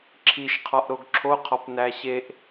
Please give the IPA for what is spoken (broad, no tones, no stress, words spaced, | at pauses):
ǁʰiʃqʰɒʔɾoɡ ǁʰoqʰɒp næɕeʔ